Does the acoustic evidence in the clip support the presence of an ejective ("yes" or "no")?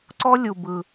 no